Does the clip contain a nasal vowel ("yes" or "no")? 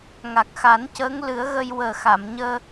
no